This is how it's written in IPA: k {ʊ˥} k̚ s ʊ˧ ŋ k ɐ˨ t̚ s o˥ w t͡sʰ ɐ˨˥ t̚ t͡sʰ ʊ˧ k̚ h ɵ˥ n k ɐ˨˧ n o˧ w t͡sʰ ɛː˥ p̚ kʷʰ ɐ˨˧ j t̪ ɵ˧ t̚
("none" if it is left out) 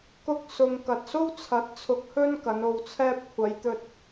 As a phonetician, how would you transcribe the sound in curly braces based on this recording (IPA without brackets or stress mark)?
ʊ˥